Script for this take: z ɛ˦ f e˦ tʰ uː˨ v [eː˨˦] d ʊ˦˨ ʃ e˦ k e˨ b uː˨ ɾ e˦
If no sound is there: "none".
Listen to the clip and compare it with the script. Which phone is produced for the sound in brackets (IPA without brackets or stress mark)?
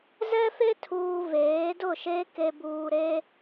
eː˨˦